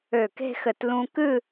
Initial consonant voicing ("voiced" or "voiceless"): voiceless